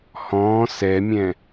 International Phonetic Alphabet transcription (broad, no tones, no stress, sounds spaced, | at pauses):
h ɔ̃ː s ɛ mʲ ɛ̃